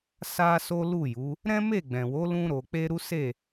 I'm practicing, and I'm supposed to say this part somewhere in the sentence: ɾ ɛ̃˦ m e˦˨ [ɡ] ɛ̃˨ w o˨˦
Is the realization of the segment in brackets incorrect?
yes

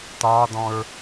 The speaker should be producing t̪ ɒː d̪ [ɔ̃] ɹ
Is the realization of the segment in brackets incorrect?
no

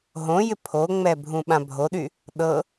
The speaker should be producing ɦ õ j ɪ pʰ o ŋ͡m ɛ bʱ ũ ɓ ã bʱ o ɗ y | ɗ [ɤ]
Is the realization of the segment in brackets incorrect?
no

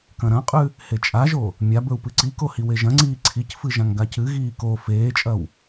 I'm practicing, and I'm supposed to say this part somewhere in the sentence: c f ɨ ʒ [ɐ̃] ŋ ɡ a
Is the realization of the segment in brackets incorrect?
yes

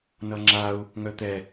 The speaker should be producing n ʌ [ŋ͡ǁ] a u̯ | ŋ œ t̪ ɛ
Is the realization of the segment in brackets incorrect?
no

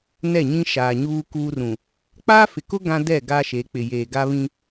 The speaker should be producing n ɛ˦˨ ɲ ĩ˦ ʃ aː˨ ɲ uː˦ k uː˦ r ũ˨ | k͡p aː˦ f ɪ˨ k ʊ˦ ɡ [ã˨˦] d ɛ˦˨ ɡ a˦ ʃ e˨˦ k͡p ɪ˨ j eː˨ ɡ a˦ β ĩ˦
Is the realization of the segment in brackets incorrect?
yes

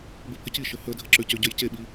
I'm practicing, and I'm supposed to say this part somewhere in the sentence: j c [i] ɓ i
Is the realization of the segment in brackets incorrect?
yes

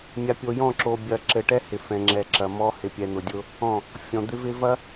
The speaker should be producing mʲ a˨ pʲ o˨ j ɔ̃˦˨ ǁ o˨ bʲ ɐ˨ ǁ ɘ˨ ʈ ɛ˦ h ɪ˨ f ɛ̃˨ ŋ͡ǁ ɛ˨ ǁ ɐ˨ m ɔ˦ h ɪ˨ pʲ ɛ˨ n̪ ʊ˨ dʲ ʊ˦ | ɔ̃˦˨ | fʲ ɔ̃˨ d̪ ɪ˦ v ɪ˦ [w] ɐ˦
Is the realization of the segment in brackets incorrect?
yes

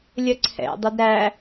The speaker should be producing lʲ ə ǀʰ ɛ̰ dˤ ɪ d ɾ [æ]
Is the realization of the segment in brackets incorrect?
no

